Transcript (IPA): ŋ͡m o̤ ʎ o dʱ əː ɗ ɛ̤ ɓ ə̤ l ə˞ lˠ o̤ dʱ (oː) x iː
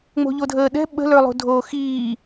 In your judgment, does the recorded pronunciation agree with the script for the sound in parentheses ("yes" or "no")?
yes